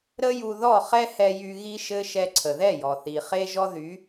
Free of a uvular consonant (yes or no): no